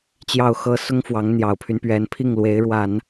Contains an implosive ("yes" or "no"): no